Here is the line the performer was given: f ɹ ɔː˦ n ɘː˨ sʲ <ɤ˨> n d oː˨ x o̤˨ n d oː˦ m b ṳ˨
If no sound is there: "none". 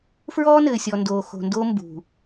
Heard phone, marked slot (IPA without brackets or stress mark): ɔ˨